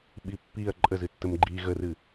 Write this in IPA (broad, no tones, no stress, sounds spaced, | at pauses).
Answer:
ɓ i pː i ɐ̯ ǃʼ ə z ɨ tː ə m ɡ͡ǃ i ɣ ə r ɨ